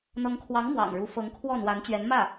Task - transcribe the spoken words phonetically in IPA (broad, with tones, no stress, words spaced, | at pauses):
n̪ɤ˧˥ŋkʰwɑ˧˥ŋ mwɑ̰˨˩ŋɻu˧˥ fɤ˧˥ŋkʰwɔ˥˩n̪wa˧˥n t͡ɕɥɛ˧˥nmä˥˩